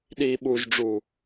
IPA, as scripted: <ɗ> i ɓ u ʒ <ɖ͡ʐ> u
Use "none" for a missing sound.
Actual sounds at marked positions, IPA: ɗ, ɖ͡ʐ

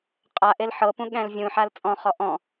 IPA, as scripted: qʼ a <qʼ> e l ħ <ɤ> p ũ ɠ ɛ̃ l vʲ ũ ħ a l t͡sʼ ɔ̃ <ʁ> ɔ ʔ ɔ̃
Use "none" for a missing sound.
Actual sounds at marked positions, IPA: ʔ, ɤ, χ

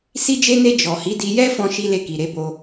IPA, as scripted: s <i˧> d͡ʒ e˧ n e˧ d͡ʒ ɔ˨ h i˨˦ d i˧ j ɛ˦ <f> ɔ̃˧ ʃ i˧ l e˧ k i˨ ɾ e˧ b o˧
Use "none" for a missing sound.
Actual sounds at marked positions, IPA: i˧, f

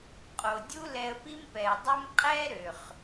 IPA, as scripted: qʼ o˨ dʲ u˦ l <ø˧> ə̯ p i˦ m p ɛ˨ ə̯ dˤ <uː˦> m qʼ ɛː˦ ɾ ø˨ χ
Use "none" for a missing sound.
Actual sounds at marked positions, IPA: ɛ˧, u˦

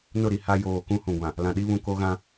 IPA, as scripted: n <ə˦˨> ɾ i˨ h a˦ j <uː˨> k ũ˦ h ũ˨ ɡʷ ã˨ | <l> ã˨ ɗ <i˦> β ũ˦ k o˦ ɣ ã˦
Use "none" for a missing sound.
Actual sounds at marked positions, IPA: ʊ˦˨, oː˨, l, i˦

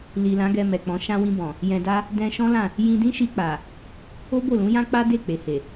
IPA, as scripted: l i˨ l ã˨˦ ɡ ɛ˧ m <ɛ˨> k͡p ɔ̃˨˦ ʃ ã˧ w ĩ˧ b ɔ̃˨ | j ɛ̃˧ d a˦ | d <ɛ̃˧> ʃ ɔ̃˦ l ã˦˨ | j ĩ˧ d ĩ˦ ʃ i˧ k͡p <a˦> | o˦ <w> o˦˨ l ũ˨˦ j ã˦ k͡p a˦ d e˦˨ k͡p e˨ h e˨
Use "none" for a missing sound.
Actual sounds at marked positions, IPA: ɛ˨, ɛ̃˧, a˨, b

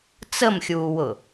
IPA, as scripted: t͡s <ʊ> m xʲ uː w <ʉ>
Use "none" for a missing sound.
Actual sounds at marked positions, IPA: ə, ʊ

